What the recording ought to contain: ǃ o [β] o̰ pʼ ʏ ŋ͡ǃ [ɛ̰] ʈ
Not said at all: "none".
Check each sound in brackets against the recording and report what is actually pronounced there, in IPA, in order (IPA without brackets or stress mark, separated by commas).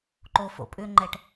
f, ɛ